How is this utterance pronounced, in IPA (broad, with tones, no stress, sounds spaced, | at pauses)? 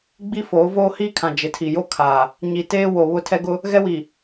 ɡ͡b i˦ f oː˨˦ v oː˦ h iː˦ kʰ ã˨ d͡ʒ ɪ˨ tʰ i˨ j o˦ kʰ a˨ | ɲ i˨ t eː˦ w o˨ β ʊ˦ tʰ ɛ˦ ɡ ʊ˦ | ɣ ɛ˦ w i˨